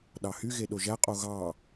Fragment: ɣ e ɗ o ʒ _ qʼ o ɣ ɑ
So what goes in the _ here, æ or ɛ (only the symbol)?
æ